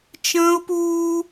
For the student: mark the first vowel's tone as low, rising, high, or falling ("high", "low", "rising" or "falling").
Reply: high